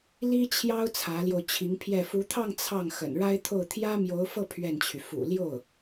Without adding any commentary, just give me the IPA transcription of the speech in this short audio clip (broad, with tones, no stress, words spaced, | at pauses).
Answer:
li˥t͡ɕʰjɑ˥ʊ̯ t͡sʰä˧˥ljo˧ʊ̯t͡ɕʰi˧˥ŋpʰjɛ˥˩ fu˧˥t̪ʰɑ˥˧ŋ t͡sʰɑ˥˩ŋ xə̰˨˩nɻa˥ɪ̯t̪ʰo˥˩ʊ̯ t̪ʰjä˥mjo˧˥ʊ̯fɤ˥˧ pʰɥɛ˥˩nt͡ɕʰy˩ fṵ˨˩ljo˥˩ʊ̯